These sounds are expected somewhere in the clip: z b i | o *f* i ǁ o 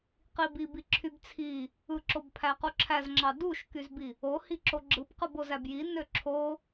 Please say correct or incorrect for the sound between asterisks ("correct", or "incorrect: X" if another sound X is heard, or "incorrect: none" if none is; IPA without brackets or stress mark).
incorrect: h